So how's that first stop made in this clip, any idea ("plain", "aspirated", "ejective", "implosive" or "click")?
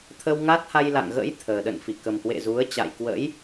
aspirated